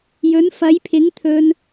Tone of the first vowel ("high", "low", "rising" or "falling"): rising